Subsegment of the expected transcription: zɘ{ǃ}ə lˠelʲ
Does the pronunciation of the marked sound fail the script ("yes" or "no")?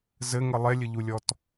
yes